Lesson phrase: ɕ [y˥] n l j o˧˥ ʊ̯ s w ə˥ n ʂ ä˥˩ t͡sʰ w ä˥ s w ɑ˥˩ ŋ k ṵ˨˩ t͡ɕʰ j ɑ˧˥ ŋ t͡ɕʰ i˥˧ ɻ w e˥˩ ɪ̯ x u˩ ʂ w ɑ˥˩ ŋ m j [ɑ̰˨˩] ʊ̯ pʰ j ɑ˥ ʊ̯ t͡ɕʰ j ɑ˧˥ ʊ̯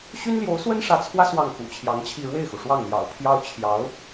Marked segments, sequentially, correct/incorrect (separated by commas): correct, correct